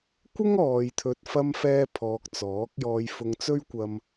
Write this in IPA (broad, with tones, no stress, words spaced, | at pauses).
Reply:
kʷɪ˥ŋ ɔː˨˧jt̪ʰɵ˧t̚ fɐ˥mfɛː˥pʰɔː˧k̚ t͡sɔː˨˥k̚jɔː˧j fʊ˧ŋt͡sɵ˥ɥkʷɐ˧m